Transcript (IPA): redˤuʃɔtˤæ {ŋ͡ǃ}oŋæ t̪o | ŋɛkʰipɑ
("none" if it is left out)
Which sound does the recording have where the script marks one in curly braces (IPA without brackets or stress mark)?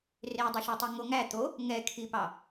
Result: ŋ